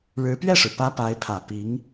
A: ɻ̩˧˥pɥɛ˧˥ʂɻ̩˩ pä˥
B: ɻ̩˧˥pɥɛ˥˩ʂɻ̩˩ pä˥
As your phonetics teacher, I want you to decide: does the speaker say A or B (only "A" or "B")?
B